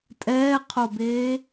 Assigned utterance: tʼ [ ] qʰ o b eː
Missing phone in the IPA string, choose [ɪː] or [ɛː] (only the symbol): ɛː